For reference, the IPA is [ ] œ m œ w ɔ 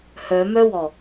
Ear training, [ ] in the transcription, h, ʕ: h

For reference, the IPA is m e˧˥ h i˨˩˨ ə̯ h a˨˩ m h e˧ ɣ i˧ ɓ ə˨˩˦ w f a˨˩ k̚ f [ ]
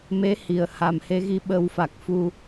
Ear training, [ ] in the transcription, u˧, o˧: u˧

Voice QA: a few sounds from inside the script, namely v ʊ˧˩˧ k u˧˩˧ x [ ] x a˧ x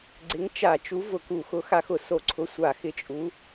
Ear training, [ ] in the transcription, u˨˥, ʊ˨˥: ʊ˨˥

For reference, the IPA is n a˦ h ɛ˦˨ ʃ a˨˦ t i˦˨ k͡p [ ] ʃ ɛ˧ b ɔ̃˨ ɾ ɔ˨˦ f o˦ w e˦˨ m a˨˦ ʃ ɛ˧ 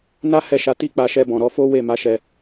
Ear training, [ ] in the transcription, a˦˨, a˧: a˧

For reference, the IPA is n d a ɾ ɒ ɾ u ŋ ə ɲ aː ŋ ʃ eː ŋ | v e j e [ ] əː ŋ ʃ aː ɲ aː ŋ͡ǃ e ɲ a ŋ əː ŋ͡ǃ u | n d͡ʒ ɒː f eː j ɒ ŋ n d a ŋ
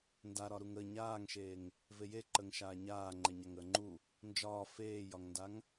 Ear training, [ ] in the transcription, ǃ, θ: ǃ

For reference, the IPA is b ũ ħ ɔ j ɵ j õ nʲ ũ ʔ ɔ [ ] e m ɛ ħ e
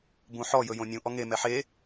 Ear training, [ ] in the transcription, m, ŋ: ŋ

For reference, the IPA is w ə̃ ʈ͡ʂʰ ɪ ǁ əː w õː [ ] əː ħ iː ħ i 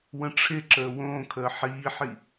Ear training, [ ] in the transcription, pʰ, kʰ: kʰ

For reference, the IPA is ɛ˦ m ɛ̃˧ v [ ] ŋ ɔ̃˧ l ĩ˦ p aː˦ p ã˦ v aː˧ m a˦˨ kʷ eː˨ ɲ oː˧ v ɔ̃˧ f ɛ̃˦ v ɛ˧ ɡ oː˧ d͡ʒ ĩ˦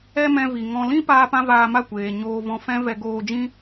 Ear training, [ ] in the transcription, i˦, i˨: i˨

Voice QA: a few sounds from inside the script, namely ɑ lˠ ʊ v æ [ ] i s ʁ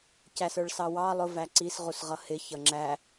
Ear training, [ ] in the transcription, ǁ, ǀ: ǀ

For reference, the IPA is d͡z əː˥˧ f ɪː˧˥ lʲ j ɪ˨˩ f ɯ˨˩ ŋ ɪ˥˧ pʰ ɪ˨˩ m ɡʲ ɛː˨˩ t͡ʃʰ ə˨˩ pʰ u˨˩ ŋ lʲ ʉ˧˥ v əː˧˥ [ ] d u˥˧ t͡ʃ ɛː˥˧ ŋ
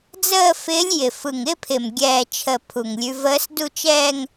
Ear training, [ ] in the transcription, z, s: s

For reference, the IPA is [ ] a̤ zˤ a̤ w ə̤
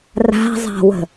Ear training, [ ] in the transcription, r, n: r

